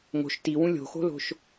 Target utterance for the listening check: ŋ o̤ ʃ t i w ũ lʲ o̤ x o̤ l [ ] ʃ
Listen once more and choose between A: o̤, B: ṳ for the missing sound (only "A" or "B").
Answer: A